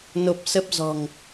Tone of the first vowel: low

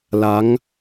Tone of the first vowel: rising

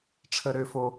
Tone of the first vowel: high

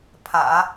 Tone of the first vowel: low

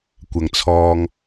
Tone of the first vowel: low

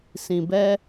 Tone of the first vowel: low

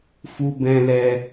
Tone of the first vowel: high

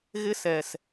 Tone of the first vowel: high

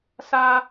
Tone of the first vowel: high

